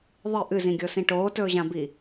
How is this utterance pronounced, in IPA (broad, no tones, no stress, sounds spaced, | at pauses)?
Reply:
ðˤ ɨ ʔ ɨ z ĩ ɡʲ o s ĩ ʈ oː t ɵː ʑ ã b i